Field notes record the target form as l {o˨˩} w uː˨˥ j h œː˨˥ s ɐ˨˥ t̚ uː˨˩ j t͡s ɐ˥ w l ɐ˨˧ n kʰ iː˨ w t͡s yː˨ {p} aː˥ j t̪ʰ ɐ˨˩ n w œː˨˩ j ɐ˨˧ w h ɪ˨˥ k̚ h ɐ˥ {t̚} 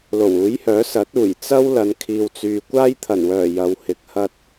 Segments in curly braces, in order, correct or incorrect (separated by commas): correct, incorrect, correct